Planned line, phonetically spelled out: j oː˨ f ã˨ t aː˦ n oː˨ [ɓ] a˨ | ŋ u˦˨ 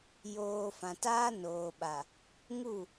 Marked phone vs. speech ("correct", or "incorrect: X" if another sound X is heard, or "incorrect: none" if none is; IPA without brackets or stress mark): correct